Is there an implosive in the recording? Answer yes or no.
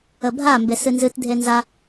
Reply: no